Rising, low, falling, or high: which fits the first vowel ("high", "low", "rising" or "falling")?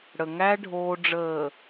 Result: low